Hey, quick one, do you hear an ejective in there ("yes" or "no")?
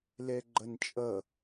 yes